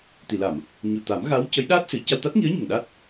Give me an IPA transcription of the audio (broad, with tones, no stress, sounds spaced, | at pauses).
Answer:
t̪ i˨˩˨ l a˨˩˨ m | ɲ u˨˩ t̪ a˨˩˦ m ɣ a˧˥ w c ə˧˥ j ɗ aː˦˥ t̚ s ɨ˨˩˨ c a˧ w t̪ a˦˥ t̚ ŋ i˧˥ ə̯ ɲ ə˨˩ ŋ ɗ a˦˥ t̚